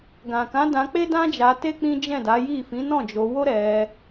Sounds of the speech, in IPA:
ɡ ã˨ k ã˨˦ d ã˧ k͡p e˦ d ã˦ d͡ʒ a˧ t e˦ k͡p ĩ˦ d͡ʒ ɛ̃˦˨ d a˨˦ j i˦˨ f ĩ˨˦ n ɔ̃˦˨ d͡ʒ o˧ w o˦ ɾ ɛ˧

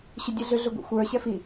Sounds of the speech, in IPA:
ɕ ʏ dʲ ɛ ɮ ʏ ɮ ʏ ɡʷ ḭ xʷ ə˞ ɕ ɛ f i

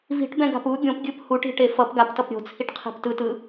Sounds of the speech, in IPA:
v i̤ ʈ b ɛ̃ ɡ a̤ p u ɡʲ õ p ɡʲ ɯ p h u ʈ i̤ ʈ e f ʌ p ɡ a p t ʌ p ɾʲ o̤ t͡sʰ i ʈ qʰ i̤ p t ɯ t ɯ

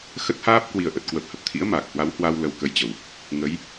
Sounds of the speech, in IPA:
x ə˦˥ t̚ h aː˦˥ p̚ k w i˨˩ ə̯ ʔ ə˨˩ t̚ k w ə˨˩ p̚ h ə˦˥ p̚ t̪ʰ ḭ˧˥ ə̯ m aː˨˩ k̚ h w a˨˦ w h w a˧ w l ə˧ w k ə˧ j t͡ɕ ə˨˩ w | ŋ ə˨˦ j

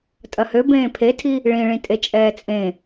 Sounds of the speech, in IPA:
tʼ ɐ h ø b ẽː pʰ e tʰ i | ɭ ĩ ɭ ĩ tʼ e t͡ʃʼ ɛː t͡sʼ ẽ

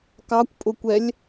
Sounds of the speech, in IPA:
k ɑ kʷ pʼ ʊ kʷ ɛ lʲ

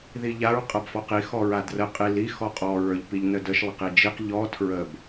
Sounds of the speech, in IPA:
ð i ʎ a ɹ qʼ a b f ɔ q i x ɔ ɹ a d r ə qʼ i l i x ɔ qʼ ɔ ɹ ə˞ ʎ p i ʎ n ə d ə ʃ lˠ ə q i d͡ʒ i q ʎ ɔ tʰ ɹ ə b

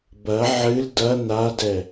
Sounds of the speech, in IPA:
b ɐ ʕ ɨ l d ɐ n a d ɛ

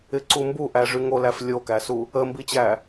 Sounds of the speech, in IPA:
ɪ ǀ u m b u ʔ æ ʐ y ŋ o l æ f lʲ o k æ s u | ə m b i t͡ɕ æ

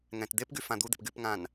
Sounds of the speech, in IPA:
ŋ ɛ̃ t d̪ e p ɡ y f ã d̪ u d̪ e̤ p ɡ y p ŋ ã n

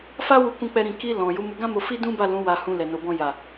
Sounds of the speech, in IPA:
f a˦ w u˧ k ũ˧ k͡p ɛ˧ ɾ ĩ˨ k i˧ l ɔ̃˨ j u˨˦ m u˧ ɡ ã˦ m o˧ f i˦ d ũ˦ b a˦˨ l ũ˨˦ w a˧ h ũ˧ l ɛ˨ n o˨ b ɔ̃˧ j a˨

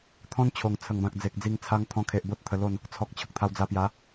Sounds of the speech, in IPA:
t̪ʰ ɔ̃˦ n t͡ɕʰ o˨˩ ŋ t͡sʰ ə˨˩ ŋ b ã˨ k̚ d͡z e˨ k̚ d͡z i˧ ŋ t͡sʰ a˧ ŋ t̪ʰ ɔ̃˧ kʰ e˨ ʔ b o˦ t̚ t̪ʰ ə˧ l o˥˧ n | t͡sʰ ɔ˨ k̚ t͡ɕʰ ə˨ k̚ t̪ʰ a˧ w d͡z a˧ p j a˨˦

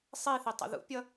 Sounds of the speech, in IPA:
sˤ i θ i tˤ ə̰ ð ṵ pʲ ʌ

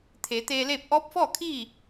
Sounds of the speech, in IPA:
t̪ʰ eː˩˧ t̪ eː˧ l eː˥˨ p̚ ʔ ɔː˧˥ p̚ f ɔː˥˨ kʰ iː˥˨

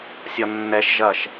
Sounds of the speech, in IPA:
sʲ ɒ nː ɛ ʃ ʒ ɐ ʃ

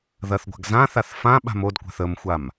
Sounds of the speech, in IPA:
ð ɐ θ ɡʷ a̤ ɡ z ã θ a θ f ã ɓ a̤ m o d kʷ a̤ θ ə m xʷ a m

